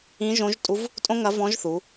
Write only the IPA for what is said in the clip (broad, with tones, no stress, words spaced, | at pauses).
ĩ˧˥ʒõ˧˥ʒtʼu˧˥v | tʼõ˥ŋɐ˧˥vɔ̃˧˥ʒθu˩˧